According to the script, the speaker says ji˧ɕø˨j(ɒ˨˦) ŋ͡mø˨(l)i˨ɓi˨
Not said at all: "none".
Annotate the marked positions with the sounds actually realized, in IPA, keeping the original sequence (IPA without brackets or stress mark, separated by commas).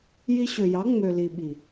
ɑ˨˦, l